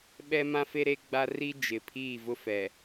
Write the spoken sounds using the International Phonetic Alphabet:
ɓ ɛ˦ m ã˦ f e˦ ɾ e˦ ɡ͡b a˦ r i˦ d͡ʒ ɪ˨ pʰ iː˦˨ v ʊ˦ f ɛ˨

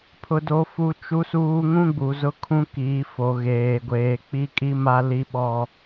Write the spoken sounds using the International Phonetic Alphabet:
pʰ ʊ˦ d o˦ f u˦ t͡ʃ u˦ s uː˦ ŋ ũ˦ ɡ͡b u˨ z ʊ˦ kʰ ũ˦ k iː˨˦ f o˨ ɣ eː˨ ɡʷ eː˨ k͡p i˦ kʼ i˦ m a˦ l i˦ ɓ ɔ˦

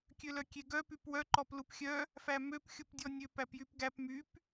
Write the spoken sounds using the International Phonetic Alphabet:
kʲ ø l œ kʲ e ɡ œ p y p w œ ǃ ɔ p l u p xʲ œ | f æ m ø p xʲ u p dʲ ɔ nʲ ø p æ p j y p ɡ æ p m y p

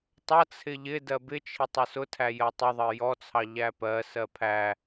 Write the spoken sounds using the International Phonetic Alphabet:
tˤ ʌ t͡sʰ ɪ ʎ ɪ d ɜ b ɪ t͡ʃʰ ɪ tˤ ʊ s ʊ tʰ æ j ɜ tˤ ɪ ðˤ ɜ j ɔ t͡sʰ ɑ ʎ æ p ɜ s ɜ pʰ æ

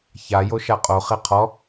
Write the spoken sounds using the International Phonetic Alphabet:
ç a j o ʃ a qʼ o χ e qʰ ɔ

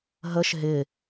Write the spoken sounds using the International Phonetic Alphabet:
ɦ ə ʃ ɦ ɪ

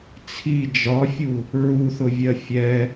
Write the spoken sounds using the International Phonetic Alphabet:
t͡sʰ i d͡ʒ ɒ fʲ u | ɹ u θ ʊ vʲ ɜ fʲ ɛ

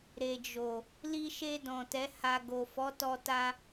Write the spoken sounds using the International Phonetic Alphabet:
ɾ e˨ d͡ʒ o˨ | l i˧ ʃ e˧ d ɔ̃˨ t ɛ˨˦ h a˧ ɡ o˨ f ɔ˨˦ t ɔ˧ t a˧

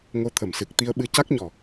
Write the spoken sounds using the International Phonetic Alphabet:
ŋ o˧ t̪ʰ ə˨˩˨ m s ɨ˨˩ k̚ t̪ i˧ ə̯ ɓ ɨ˧˥ c a˦˥ k̚ ɲ ɔ˨˩

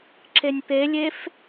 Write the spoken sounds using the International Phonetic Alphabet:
ǁ e nʲ p e lʲ e f

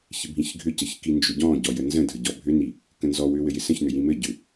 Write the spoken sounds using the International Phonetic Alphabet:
ç ɪ bʱ ĩ ç ɡʱ ʏ c ə ç k i n d͡ʒ ʏ ɟ ɔ̃ ɟ ɔ j ə n z ə̃ dʱ ə ɟ ɔ bʱ ʏ n i | k ə̃ n z ɔ w ʏ w ɘ j ɪ s ə̃ ç n ʏ j ĩ m ɘ ɟ ʏ

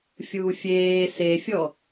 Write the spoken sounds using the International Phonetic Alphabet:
fʲ uː fʲ eː s e fʲ ɔ

